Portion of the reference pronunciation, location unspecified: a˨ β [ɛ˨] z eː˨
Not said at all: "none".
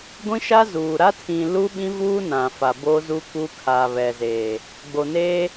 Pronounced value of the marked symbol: ɛ˨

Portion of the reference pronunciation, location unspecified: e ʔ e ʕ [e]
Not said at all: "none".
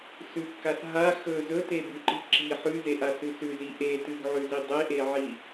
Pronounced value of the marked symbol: i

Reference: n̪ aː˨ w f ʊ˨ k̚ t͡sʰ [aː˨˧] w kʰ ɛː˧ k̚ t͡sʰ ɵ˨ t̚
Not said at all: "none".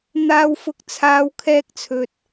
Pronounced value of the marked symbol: aː˨˧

